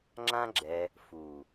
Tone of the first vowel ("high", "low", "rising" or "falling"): high